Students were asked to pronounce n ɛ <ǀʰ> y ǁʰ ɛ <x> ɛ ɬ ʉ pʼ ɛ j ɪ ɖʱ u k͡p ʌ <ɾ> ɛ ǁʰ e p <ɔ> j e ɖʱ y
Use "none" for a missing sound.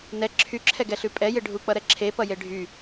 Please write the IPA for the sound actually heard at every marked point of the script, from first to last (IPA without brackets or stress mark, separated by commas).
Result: ǁʰ, ɡ, ɾ, ʌ